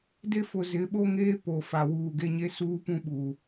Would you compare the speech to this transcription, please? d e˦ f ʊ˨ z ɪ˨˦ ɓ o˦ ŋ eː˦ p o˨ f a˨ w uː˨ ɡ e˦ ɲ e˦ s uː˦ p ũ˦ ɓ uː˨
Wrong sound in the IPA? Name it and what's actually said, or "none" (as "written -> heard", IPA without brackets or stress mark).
none